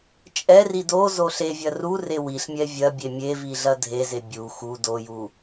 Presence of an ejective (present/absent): present